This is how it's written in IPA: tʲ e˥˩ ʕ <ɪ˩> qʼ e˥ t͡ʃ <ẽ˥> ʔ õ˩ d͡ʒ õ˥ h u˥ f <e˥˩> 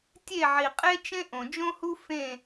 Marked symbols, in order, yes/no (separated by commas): no, yes, no